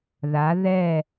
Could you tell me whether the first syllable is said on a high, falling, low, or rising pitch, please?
rising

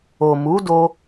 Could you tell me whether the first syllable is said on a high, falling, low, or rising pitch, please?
low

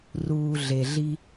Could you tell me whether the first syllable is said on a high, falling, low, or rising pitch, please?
low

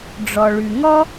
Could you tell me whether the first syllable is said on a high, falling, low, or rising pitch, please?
low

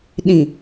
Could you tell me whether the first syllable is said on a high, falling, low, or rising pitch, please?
low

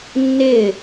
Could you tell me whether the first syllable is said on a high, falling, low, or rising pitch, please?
falling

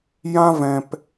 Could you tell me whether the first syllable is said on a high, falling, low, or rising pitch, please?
high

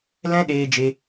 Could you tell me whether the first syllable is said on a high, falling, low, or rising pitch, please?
high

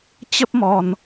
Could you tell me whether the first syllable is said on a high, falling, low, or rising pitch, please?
high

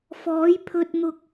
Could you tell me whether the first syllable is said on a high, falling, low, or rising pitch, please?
rising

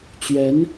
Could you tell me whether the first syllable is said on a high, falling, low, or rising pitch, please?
rising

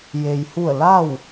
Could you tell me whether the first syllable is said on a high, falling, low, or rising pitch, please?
low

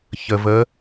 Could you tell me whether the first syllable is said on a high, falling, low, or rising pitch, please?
low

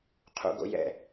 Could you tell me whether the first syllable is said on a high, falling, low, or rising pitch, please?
high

